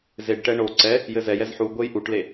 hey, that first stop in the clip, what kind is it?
plain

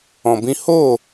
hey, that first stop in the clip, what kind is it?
plain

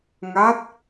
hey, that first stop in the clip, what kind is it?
plain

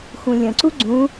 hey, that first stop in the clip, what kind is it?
click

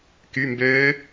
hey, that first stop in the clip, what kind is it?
plain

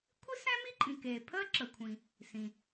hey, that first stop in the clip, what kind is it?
aspirated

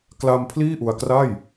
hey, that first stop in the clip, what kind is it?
plain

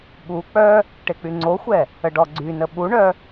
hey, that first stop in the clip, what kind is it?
implosive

